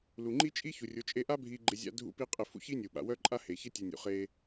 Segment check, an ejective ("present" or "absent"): present